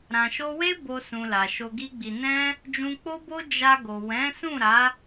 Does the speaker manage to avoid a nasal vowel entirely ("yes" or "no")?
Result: no